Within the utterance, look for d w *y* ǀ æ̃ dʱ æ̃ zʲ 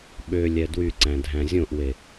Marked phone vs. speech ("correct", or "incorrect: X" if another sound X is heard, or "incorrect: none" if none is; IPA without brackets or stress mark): correct